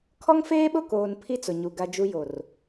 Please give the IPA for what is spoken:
kʰɔ˦ŋfeː˦ɓʊ˦˨koː˨n pʰi˦t͡sʊ˨ɲu˨ ɡa˦d͡ʒu˦ jo˨r

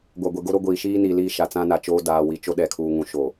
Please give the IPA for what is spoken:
ɡʷa˨ɡʷe˨ ɡo˦ɾo˦ɡʷiː˨ ʃiː˦niː˨ liː˦˨ʃa˨ t͡sã˦na˨t͡ʃoː˦ daː˨ wi˨t͡ʃo˦ ɗɛ˨kʰuː˨ŋũ˨˦ ʃoː˨

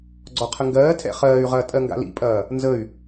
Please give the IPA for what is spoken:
ɡ͡ǀɔqʰəŋɡɜːtʰɛ̰ χɜːy̯ʁɐː tʼɜŋɡa̰lḭpʼɐː | nzəy̯

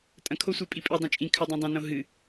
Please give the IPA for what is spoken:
tʼɐ̃kʰosʷe pʼipʼi dˤõt͡ʃʼĩ kʰɵdˤɐ̃dˤãnõ ɦɨ

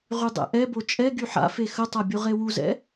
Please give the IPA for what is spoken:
ʁydˤɛ̰ʔɛbo t͡ʃʼɛɡy ħa̰fe xətˤa bʲuʁewuzɛ̰

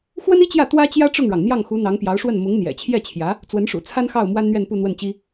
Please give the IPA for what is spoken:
xwə˥ni˥t͡ɕjä˥˩ t̪wä˥t͡ɕjä˥ʈ͡ʂʊ˥˩ŋɻɑ˩ŋ n̪jɑ˥˩ŋxu˧˥ n̪ɑ˧˥ŋpjɑ˧˥ʊ̯ʂwə˥˩n mʊ˧˥ŋn̪jɛ̰˨˩t͡ɕʰjɛ˥˩t͡ɕʰjä˧˥ | t͡swə˧˥nʂṵ˨˩ t͡sʰa˥nxɑ˥˩ʊ̯ mwa˥nn̪ɥɛ˥˧npu˥˧n̪wə˥˩n t͡ɕi˥

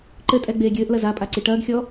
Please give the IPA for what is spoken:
ǃɘtʼɛ ɡ͡beːɡʲɘːʔlɐz apʼa ǀiʈɐːɡxʲɔ

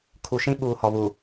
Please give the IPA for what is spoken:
kʰu˨ʃĩ˦ɓuː˨ hɔ˨βu˨

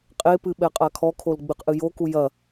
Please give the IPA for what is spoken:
qʼepɨ ɓɛqʼakʰɔkʰol ɡ͡bɨqʔɨjoku jɐ

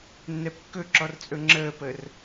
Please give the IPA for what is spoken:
nːɛpkːɵǁɔr t͡sʼɵŋ͡ǁəːpəːr

